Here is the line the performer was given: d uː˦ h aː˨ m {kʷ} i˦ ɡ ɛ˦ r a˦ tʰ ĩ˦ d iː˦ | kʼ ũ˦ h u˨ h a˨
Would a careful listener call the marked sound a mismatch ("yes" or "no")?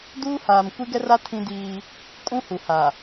no